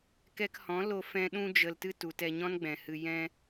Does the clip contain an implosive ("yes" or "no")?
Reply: yes